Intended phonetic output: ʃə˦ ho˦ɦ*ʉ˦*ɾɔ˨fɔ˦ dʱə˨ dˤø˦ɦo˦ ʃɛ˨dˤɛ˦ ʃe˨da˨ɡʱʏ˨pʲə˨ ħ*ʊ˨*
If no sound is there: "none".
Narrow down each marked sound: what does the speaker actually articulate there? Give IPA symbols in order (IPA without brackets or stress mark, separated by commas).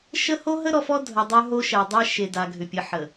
ə˦, ə˨